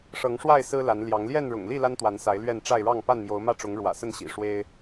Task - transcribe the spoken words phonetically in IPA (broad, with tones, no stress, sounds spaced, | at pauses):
ʂ ɤ˨˦ ŋ ʂ w a˥˨ ɪ̯ s ɹ̩˦ l a˨˦ n l j ɑ˨˦ ŋ l j ɛ˥˨ n ɻ ʊ̰˨˩ ŋ l i˥˨ l a˦ n t̪ w a˨˦ n s a˨˦ ɪ̯ l ɥ ɛ˥˨ n ʈ͡ʂ a˥˨ ɪ̯ ɻ ɑ˥˨ ŋ p a˥˨ n m j o˨˦ ʊ̯ m ä˥˨ ʈ͡ʂ ʊ˨˦ ŋ ɻ w ä̰˨˩ s ə˥˨ n ɕ ḭ˨˩ ʂ w e˦ ɪ̯